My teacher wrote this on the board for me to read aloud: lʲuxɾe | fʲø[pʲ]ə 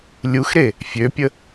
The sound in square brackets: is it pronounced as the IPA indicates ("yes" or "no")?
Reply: yes